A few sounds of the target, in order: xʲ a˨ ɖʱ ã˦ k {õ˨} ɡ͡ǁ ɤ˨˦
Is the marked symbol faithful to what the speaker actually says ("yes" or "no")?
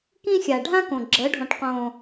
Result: yes